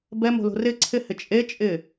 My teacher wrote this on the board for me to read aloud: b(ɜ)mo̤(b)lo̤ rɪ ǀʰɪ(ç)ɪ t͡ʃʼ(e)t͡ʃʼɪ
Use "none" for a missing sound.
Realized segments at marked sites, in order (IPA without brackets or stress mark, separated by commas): ɛ, none, h, e